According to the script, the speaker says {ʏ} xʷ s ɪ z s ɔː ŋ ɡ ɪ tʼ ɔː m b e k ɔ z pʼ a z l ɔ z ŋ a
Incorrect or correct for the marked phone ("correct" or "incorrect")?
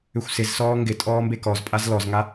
correct